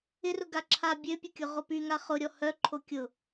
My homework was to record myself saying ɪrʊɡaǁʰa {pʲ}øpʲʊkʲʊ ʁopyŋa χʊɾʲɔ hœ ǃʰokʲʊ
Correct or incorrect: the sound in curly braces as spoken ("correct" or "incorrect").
incorrect